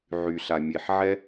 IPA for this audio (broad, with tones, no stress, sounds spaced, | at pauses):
ʕ y˨ ɬ a˨ mʲ e˨ ħ ʕ ɛ˦